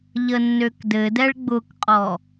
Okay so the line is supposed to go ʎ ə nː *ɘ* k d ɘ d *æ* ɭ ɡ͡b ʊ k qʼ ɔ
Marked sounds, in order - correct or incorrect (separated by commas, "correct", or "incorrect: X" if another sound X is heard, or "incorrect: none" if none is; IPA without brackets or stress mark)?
incorrect: ø, incorrect: ɛ